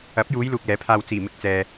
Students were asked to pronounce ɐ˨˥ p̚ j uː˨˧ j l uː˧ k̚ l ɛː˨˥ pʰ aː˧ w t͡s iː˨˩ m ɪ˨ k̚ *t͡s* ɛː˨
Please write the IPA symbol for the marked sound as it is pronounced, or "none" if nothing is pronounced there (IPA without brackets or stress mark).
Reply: t͡s